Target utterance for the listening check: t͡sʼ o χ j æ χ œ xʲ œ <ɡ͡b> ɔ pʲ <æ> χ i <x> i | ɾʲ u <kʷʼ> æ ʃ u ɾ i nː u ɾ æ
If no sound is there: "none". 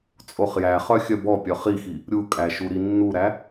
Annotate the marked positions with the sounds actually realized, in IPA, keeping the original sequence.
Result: b, œ, x, kʼ

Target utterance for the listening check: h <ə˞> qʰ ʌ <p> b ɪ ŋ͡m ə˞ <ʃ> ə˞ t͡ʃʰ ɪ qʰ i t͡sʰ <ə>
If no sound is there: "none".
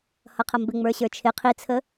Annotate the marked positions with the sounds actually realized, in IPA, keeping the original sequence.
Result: ʌ, m, ɕ, ə

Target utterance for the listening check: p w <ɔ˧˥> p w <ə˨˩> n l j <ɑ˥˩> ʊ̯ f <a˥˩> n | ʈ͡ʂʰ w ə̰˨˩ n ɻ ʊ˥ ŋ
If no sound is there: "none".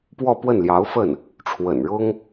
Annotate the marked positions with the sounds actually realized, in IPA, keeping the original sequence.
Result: ɔ˥˧, ə˥˩, ɑ˧˥, ə˥˩

